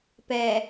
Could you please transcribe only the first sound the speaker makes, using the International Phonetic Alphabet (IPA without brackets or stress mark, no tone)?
p